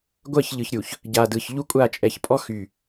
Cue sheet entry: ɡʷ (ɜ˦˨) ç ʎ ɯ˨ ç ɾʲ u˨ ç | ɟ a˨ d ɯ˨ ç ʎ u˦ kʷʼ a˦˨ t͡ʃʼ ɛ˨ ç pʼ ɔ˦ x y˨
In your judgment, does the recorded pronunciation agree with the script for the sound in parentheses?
yes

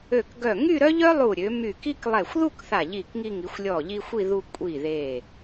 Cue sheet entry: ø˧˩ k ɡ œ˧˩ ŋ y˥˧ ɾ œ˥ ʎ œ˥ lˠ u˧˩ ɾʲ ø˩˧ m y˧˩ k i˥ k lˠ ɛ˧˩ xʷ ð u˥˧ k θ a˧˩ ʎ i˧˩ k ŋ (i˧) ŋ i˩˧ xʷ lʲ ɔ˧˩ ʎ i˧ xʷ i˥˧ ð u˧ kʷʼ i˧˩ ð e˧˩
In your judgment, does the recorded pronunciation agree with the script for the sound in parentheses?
yes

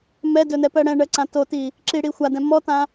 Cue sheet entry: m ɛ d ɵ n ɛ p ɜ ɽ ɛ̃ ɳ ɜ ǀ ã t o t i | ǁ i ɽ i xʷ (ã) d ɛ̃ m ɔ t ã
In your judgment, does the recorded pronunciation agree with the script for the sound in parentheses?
no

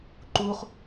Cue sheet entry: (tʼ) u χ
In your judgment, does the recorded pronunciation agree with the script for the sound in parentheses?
no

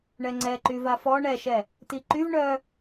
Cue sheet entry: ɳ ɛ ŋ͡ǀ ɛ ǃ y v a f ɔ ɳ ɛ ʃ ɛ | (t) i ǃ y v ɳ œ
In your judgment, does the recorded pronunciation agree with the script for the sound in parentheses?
yes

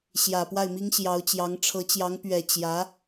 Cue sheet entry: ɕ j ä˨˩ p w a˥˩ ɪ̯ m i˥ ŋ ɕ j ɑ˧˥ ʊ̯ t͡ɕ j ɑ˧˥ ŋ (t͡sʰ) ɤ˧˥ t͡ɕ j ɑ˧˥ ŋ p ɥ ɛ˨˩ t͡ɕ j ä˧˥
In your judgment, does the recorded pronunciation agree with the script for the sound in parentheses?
no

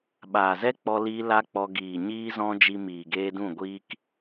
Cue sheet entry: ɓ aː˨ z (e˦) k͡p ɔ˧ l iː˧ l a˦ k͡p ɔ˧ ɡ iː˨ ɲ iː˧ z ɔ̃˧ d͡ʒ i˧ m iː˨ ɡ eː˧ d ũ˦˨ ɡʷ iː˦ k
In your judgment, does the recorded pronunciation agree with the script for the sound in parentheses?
no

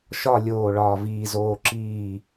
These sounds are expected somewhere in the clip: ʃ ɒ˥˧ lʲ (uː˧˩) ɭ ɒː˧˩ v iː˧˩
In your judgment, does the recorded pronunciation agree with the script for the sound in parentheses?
no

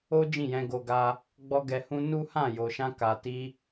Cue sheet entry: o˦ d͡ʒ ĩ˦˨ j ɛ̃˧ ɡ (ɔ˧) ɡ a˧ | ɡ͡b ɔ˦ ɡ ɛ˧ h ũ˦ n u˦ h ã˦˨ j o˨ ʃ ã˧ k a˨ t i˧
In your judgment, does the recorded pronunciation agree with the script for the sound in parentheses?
no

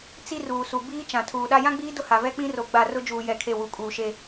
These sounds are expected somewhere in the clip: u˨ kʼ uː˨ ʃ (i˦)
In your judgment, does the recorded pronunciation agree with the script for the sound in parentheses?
no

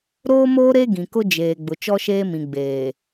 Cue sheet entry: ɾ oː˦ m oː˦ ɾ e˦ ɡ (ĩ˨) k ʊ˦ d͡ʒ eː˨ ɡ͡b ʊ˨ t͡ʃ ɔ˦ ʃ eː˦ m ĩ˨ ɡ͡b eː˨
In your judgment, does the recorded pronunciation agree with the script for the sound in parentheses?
yes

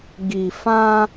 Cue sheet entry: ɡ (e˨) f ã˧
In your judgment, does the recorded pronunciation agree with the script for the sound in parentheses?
no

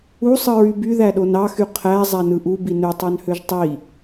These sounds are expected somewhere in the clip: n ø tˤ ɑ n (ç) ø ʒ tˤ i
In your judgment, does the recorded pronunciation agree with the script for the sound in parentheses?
no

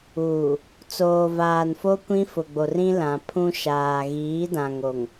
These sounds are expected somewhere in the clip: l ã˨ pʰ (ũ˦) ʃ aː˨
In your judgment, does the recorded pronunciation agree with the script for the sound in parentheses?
yes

